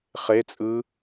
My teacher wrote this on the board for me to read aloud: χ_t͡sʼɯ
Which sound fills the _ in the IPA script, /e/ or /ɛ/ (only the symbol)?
e